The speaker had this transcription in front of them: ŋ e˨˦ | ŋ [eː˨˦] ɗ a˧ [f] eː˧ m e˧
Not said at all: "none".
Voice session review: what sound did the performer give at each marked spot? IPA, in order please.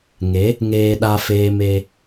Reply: eː˧, f

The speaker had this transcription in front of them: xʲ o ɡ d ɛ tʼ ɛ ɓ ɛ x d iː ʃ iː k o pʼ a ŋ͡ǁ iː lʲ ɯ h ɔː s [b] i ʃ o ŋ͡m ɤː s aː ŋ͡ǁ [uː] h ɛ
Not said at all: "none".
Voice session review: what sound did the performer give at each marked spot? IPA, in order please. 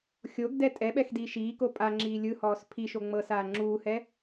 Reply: pʰ, uː

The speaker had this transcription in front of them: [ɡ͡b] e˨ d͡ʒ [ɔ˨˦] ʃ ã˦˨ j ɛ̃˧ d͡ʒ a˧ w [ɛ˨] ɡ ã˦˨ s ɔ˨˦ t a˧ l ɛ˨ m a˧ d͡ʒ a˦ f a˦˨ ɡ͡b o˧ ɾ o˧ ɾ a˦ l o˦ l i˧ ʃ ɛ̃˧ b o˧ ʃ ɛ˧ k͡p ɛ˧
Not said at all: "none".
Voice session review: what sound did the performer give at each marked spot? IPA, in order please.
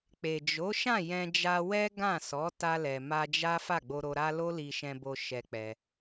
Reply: k͡p, o˨˦, ɛ˦

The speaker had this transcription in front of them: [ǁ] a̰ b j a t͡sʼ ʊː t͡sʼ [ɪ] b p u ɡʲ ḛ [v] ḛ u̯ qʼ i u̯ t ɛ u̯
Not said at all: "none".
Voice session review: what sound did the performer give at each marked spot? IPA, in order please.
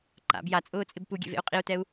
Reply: ǃ, ɪ, v

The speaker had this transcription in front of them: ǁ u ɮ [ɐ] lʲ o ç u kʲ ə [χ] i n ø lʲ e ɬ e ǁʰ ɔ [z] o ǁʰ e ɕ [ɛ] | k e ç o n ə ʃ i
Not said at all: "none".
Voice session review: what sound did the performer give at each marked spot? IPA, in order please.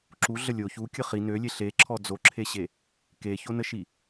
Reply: ə, χ, d͡z, e

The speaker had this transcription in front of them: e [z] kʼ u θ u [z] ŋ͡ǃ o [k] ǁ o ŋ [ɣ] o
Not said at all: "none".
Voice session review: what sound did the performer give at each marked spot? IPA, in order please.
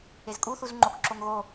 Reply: z, z, k, ɣ

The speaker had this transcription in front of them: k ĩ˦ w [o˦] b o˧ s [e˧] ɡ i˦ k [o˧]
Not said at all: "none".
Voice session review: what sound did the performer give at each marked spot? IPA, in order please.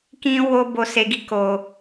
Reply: o˦, e˧, o˧

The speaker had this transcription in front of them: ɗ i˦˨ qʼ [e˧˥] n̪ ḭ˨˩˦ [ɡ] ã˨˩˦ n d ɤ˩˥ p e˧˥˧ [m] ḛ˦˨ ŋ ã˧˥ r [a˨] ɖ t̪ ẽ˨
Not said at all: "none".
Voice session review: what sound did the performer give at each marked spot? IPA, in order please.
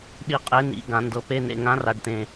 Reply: e˧˥, ɡ, n, a˨

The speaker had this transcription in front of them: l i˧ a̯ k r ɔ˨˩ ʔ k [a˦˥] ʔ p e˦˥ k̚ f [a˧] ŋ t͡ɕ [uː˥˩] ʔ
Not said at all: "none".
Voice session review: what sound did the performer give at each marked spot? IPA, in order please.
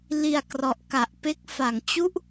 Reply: a˨˩, a˨˩, u˥˩

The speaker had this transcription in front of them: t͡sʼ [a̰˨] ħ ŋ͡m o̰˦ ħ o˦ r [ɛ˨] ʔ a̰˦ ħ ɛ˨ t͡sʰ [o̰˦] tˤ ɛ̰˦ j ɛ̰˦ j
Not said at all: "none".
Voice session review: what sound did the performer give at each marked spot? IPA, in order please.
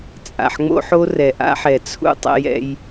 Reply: a̰˨, ɛ˨, ṵ˦

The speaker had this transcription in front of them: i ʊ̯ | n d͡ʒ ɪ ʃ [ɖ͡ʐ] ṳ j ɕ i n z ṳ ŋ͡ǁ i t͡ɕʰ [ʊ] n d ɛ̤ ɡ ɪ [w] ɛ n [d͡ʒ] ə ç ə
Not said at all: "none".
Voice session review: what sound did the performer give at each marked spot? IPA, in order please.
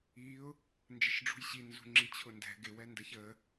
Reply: ɖ͡ʐ, ʊ, w, d

